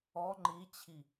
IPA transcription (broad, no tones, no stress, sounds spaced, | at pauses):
ɔ ŋ͡ǃ i t͡ɕʰ i